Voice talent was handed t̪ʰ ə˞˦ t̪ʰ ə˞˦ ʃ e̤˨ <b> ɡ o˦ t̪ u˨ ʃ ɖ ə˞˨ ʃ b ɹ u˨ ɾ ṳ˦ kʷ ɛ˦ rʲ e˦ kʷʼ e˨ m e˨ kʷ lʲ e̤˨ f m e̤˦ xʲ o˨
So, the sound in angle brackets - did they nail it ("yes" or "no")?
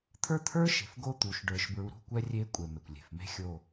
no